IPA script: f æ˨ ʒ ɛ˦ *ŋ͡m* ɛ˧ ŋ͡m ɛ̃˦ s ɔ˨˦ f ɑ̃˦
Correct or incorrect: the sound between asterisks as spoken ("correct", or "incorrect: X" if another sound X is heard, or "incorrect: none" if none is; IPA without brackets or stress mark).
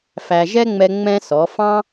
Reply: correct